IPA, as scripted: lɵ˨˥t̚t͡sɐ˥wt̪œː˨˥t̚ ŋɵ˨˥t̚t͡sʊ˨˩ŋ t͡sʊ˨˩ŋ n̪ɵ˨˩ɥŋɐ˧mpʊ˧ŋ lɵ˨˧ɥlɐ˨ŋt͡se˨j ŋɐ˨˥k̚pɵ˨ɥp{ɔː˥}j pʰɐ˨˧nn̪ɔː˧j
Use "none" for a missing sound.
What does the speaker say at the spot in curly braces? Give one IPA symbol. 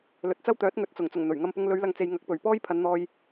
ɔː˥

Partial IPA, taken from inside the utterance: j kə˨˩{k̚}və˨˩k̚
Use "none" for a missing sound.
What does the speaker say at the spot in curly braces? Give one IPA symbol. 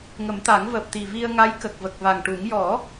k̚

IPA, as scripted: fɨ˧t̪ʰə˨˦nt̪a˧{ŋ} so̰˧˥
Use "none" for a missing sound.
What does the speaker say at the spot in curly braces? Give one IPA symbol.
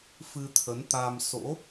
m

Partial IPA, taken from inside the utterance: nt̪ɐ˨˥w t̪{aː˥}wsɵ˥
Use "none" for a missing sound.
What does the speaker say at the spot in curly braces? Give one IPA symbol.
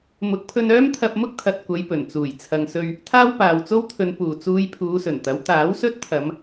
aː˨˥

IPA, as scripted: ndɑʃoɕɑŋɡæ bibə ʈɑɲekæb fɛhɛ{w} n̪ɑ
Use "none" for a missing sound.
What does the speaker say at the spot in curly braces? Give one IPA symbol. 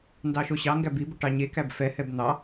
b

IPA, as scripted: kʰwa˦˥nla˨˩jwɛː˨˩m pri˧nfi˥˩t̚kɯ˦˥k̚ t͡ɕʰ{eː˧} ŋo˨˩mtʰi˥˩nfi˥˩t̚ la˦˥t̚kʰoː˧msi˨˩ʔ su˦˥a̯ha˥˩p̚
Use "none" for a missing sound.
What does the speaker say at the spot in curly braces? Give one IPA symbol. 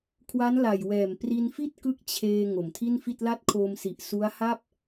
eː˧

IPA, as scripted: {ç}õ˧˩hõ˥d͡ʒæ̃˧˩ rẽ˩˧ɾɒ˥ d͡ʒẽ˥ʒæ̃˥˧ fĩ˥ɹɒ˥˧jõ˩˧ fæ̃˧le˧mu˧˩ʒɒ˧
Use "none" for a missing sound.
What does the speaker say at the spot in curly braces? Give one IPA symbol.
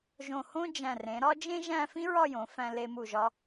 ʒ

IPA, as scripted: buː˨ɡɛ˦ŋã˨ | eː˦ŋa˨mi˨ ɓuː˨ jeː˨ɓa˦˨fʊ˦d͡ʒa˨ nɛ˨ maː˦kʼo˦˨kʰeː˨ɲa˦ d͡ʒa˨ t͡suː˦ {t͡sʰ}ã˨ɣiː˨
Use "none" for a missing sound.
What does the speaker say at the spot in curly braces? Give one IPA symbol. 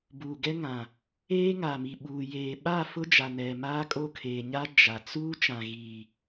t͡ʃ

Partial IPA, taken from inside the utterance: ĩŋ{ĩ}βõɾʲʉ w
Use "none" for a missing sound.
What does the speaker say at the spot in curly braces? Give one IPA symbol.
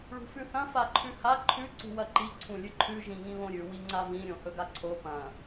ĩ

